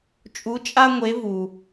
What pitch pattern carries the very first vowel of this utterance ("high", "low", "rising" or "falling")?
rising